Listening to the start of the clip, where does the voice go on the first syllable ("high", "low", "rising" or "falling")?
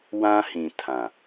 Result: high